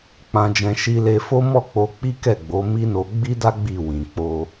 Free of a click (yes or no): yes